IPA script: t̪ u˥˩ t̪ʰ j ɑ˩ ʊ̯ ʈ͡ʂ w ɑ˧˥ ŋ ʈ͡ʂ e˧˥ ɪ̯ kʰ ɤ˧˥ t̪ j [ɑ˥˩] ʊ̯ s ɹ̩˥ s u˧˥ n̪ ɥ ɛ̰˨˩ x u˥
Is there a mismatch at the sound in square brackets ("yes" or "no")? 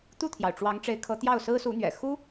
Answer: no